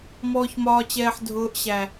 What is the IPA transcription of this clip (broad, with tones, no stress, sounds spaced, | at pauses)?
m ɔː˨ ç m ɒː˨ t͡ɕ ɛː˨ ħ dʱ ʊː˨˦ ʔ ɕ æ˨